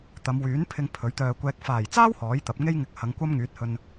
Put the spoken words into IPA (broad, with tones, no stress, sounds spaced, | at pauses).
t̪ ɐ˨˧ m w yː˨˥ n pʰ ɪ˧ ŋ pʰ ɵ˨˥ ɥ t̪ œː˧ kʷ ɛː˨ k̚ f aː˨˩ j t͡s aː˥ w h ɔː˨˥ j t̪ ɐ˨˥ p̚ ŋ e˥ j ŋ ɪ˨˥ k̚ h ɐ˨˧ ŋ kʷ ɐ˥ m ŋ yː˨˥ t̚ h ɵ˧ n